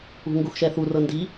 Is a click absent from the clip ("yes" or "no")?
yes